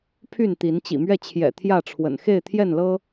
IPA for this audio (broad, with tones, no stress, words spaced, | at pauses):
pʰy˥˨nt̪i˨˦n t͡ɕḭ˨˩mɥɛ˥˨t͡ɕʰjɛ̰˨˩ t̪ʰjä˥˨ʈ͡ʂʰwə̰˨˩n xe˥˨ɪ̯t̪ʰjɛ˥˨nlɤ˦